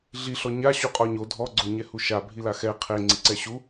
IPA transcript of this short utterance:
ɮ i ɬ ɔ ɲ a ɕ u qʼ ɔ ɲ o dʱ ɔ ɡ͡ǀ o ɲ ɛ h u ʃ a bʱ i l a x ɛ qʰ e ŋ͡ǀ i ǀ ɛ ɕ u

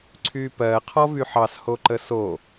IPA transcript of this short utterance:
ǀʰ y p ɜ qʰ ɔ v y ħ ɑ s h o ǃ ə s o

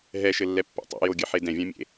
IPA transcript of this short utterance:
ɦ ɛ ʃ ɘ lː ɛ pː ḛ tˤ ṵ j o ɡʲ ɘ ħ e d ɛ̃ vʲ ã mʲ ḛ

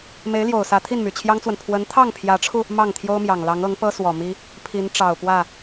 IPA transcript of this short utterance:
m e˧˥ ɪ̯ l j o˨˩ ʊ̯ s ä˧˥ t̪ʰ i˥˩ n m y˨˩ t͡ɕʰ j ɑ˥ ŋ t͡s w ə˨ n pʰ w ə˧˥ n t̪ʰ ɑ˥˩ ŋ pʰ j ä˧˥ ʈ͡ʂʰ u˧ | m ɑ˥˩ ŋ t̪ʰ j o˥ ʊ̯ m j ɑ˨˩ ŋ l ɑ˧˥ ŋ ɤ˧˥ ŋ p ɤ˥ s w ɔ˨˩ m i˥ | pʰ i˧˥ n ʈ͡ʂ ɑ˨˩ ʊ̯ p w ä˥˩

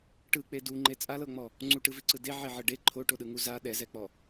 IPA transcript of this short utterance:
ʈ ɯ k͡p e d u ŋ͡ǃ e t͡sʼ a l ɤ ŋ͡m ɔ | ŋ͡ǀ u ʈ ɯ v i ǀ ɯ d e ʕ e ʕ ɤ ɖ e ǃʰ o ʈ o ɗ ɯ ŋ u z a ɗ ɛ z ɛ k͡p ɔ

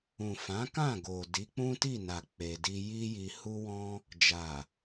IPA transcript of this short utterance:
ũ˨ f ã˨˦ k ã˦˨ ɡ o˨ d i˨˦ k͡p ũ˦ t i˦˨ n a˨ k͡p e˧ d i˦ j i˦ j i˧ h u˦ w ɔ̃˦ | d͡ʒ a˨

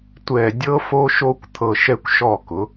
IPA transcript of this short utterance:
tʷ ɛ˧˩ dʲ ɤ˦˥ f o˦˥ ʃ o˦˥ kʷ t̪ʰ ɤ˧ ʃ ɛ˦˥ kʷ ʃ ɔ˥˩ k ʊ˩˥

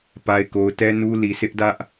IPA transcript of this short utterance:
p a˨ ɪ̯ k o˨ ʊ̯ t ɛ˦ n u˦ l i˨ sʰ ɪ˦ ʔ d ä˦ ʔ

